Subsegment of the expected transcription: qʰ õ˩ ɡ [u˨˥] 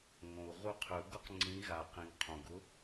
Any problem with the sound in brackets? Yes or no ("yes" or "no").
yes